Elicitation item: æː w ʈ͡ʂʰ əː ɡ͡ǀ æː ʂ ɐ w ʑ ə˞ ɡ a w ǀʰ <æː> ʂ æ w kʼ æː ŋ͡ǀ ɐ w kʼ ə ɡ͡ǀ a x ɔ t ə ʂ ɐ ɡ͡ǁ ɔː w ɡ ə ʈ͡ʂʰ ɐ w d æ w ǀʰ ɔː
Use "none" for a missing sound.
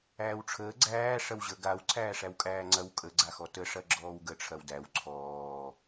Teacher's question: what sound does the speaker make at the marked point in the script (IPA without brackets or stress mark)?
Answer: æː